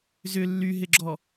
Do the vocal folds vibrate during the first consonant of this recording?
yes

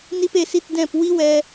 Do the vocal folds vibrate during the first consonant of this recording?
yes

